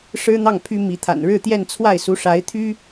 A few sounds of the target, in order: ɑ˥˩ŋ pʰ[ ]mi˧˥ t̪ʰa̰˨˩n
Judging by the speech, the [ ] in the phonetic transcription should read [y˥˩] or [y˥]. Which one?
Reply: y˥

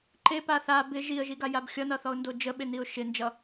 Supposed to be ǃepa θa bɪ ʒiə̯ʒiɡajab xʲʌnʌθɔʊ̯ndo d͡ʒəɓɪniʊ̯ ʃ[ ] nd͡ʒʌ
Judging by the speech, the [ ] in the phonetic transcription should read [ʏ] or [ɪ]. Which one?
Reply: ɪ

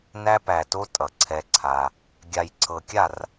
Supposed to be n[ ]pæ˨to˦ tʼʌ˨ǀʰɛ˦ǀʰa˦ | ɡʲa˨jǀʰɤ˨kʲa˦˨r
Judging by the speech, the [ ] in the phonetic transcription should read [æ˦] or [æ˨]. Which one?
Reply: æ˦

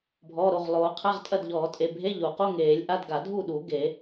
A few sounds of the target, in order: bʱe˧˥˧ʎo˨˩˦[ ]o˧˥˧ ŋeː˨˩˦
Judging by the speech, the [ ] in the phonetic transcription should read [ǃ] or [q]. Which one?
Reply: q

